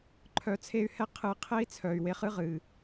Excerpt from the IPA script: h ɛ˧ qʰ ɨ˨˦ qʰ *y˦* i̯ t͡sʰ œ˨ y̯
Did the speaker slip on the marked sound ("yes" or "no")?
yes